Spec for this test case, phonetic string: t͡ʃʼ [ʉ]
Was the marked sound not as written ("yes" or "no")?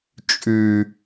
no